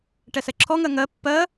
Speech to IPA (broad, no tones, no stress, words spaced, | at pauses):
ʈɛsɛǁʰɔŋɜ ŋɜ pːɜ